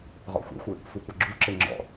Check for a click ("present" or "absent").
present